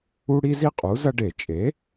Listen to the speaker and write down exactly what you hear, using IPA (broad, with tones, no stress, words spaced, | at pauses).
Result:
u˦ ɽi˦zi˦ qʼu˩˥zɐ˦ ɖe˧˩˧t͡ʃʼe˩˥